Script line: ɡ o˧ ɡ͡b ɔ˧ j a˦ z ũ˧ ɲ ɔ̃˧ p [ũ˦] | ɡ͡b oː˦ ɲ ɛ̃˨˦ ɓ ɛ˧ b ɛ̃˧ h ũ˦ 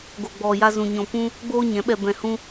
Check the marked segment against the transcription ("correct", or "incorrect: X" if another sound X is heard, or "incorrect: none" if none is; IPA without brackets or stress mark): correct